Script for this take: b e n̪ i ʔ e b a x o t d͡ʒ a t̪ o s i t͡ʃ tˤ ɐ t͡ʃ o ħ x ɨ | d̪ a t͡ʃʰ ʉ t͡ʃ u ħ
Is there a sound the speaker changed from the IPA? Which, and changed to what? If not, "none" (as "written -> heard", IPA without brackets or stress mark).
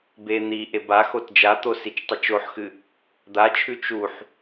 none